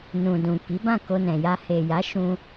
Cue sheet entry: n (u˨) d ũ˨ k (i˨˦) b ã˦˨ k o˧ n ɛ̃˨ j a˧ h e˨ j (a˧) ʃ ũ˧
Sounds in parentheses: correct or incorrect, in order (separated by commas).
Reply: incorrect, correct, incorrect